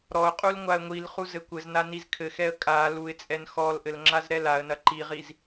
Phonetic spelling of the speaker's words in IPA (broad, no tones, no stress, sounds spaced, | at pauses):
ɾ ɔ ʊ̯ qʼ u l ŋʷ a ə̯ ŋʷ i l χ u z ɘ kʷ ɘ z n a n i z kʰ ɘ x ɛ ə̯ kʼ a l u ɪ̯ t͡sʼ ɛ n x ɔ l ʔ ɘ l ŋ͡ǁ a z ɾ ɛ l a ə̯ n ɐ ǃ i ʁ i z